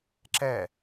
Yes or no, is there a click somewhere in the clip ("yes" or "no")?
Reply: yes